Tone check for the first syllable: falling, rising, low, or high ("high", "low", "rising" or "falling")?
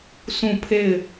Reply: falling